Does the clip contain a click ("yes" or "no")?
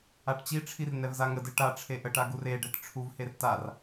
no